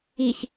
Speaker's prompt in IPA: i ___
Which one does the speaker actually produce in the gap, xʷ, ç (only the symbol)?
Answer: ç